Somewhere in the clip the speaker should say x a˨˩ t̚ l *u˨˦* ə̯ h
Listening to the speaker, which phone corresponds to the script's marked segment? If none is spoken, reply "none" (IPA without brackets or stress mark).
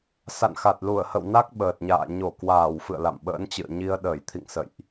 u˧˩